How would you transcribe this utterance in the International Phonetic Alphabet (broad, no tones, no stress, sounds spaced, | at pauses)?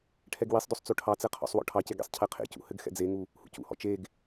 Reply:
ʈʰ ɛ ɡ w i sˤ d o sˤ t͡s o ʈʰ ɑ t͡s ɛ qʰ ɔ̰ sˤ w ɔ̰ ʈʰ ɑ c e ɡ ḛ sˤ cʰ ɛ qʰ ḛ c ṵ h ɘ ɡ x ɛ̰ d͡z e ŋ u | h ṵ c ṵ h ɔ̰ t͡ʃ e ɡ